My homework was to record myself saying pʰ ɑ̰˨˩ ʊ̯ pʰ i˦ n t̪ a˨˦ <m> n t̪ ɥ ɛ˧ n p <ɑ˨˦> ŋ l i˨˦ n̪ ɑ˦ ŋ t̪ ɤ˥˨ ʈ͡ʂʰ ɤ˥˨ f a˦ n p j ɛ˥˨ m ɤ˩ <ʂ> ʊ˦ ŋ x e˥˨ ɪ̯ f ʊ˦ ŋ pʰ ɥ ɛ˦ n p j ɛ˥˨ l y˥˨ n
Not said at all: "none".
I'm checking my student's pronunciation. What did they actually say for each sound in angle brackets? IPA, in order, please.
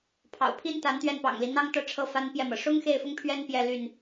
none, ɑ̰˨˩, ʂ

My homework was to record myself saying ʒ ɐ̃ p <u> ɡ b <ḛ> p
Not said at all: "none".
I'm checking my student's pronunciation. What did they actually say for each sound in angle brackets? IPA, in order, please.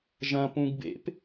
ũ, ḛ

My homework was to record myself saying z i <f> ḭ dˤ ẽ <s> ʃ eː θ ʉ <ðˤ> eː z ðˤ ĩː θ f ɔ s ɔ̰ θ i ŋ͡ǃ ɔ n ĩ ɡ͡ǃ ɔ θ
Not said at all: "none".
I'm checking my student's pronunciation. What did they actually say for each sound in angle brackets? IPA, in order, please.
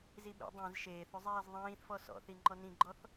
ɓ, z, zˤ

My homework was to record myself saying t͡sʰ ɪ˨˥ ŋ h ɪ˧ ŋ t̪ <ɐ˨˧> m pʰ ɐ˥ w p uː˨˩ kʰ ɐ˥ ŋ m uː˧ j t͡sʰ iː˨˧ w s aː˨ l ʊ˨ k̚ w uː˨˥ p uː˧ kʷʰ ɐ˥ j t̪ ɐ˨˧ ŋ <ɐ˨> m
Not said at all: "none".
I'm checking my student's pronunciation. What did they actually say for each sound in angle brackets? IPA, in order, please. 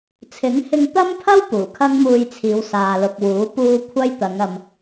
ɐ˥, ɐ˨

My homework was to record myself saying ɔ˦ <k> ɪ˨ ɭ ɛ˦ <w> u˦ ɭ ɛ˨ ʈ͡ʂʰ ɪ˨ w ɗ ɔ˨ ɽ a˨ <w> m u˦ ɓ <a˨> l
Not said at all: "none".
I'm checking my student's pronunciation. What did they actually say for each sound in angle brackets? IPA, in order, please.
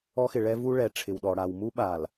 x, v, w, a˨

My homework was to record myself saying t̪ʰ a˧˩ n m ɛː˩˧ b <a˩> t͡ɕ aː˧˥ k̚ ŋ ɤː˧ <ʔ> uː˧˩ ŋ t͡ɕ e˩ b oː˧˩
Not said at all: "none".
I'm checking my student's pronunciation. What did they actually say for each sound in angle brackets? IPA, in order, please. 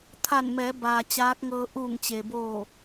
aː˩, ʔ

